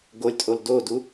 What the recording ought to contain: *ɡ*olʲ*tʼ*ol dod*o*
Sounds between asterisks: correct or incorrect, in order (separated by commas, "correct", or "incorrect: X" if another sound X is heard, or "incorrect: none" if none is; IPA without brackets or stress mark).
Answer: correct, correct, incorrect: u